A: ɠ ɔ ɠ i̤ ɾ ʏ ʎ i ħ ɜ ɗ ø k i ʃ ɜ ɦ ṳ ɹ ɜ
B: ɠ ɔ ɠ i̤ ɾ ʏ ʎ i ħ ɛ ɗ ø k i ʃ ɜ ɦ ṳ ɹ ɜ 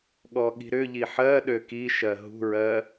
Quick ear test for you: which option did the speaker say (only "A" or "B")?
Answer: A